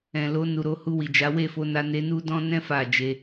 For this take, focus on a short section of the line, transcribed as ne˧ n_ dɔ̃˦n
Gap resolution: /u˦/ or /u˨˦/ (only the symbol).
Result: u˦